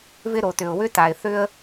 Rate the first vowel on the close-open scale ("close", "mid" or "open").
close